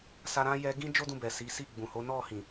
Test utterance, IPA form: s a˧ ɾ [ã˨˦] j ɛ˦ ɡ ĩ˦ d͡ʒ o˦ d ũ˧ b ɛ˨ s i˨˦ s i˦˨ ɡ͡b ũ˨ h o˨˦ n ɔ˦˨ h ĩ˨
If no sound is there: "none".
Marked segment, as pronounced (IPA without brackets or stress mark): ã˦